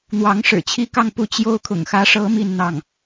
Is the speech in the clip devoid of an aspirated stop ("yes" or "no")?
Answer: no